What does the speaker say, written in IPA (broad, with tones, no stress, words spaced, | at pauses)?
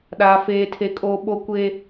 ɗaː˦feː˦tʰe˦kʼoː˦ ɓo˦kʷe˦